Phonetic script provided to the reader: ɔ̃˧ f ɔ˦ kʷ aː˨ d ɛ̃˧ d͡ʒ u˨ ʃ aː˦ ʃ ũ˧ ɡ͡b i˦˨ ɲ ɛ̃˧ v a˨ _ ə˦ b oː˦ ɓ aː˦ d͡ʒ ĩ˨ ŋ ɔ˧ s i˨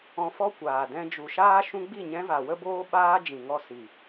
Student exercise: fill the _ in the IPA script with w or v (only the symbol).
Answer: w